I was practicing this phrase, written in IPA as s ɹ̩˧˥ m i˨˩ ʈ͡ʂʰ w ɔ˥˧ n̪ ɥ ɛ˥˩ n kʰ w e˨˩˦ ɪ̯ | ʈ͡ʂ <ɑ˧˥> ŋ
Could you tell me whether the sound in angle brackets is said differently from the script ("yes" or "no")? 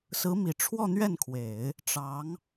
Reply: no